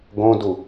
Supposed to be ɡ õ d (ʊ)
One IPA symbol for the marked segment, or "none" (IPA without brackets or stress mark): u